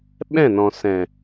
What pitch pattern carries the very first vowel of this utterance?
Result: falling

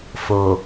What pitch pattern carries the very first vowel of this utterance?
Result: low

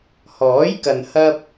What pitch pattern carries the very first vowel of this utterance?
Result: rising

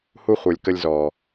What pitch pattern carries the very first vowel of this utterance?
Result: high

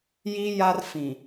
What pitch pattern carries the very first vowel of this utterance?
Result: high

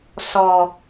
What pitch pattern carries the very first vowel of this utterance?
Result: low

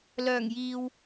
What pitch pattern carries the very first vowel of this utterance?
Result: low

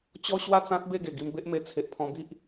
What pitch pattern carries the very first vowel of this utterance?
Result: high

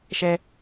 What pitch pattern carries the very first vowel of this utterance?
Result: high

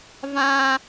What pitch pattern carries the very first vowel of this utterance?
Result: high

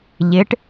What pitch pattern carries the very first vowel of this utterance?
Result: rising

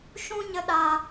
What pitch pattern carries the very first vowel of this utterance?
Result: high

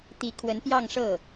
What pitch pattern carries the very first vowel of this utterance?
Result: rising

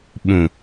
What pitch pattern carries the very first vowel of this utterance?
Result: low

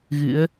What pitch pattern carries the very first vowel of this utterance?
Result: rising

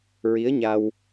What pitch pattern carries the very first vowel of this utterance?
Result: rising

